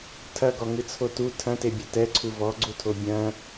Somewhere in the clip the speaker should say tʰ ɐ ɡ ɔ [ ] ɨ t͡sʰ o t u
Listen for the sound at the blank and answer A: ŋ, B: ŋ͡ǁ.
A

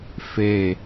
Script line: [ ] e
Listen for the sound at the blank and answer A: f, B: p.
A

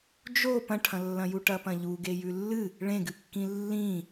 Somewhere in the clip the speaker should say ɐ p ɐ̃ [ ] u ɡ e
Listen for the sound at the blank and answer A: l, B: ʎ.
B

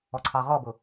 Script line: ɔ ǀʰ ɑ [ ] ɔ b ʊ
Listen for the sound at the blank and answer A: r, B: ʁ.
B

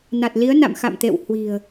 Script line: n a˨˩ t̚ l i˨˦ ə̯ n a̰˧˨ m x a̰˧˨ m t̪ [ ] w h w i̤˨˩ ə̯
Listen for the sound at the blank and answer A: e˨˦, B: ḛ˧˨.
B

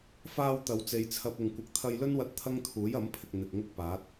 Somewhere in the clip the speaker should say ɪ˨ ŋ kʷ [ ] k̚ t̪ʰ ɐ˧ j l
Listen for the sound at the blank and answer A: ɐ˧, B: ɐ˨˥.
B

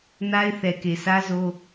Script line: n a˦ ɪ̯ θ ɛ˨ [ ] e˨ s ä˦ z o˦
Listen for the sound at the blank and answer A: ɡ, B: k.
B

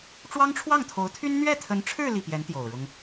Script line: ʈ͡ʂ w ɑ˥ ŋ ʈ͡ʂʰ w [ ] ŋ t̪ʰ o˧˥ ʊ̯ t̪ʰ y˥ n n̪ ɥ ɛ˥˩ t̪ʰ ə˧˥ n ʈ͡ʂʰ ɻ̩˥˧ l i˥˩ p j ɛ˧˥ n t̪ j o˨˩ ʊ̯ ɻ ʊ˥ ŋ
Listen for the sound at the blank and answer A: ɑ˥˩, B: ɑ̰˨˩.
A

